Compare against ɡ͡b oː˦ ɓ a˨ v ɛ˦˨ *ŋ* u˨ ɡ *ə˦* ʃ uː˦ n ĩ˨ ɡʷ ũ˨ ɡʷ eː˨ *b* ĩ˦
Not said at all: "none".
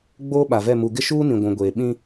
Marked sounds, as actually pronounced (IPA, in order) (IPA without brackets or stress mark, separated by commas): m, ɪ˦, ɓ